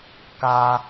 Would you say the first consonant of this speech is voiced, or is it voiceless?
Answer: voiceless